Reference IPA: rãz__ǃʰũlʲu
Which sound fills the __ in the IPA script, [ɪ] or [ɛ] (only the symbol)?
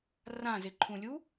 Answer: ɪ